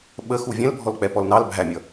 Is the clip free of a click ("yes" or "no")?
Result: yes